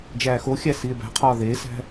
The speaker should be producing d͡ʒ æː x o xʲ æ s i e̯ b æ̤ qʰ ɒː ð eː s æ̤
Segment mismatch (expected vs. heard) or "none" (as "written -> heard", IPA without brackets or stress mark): none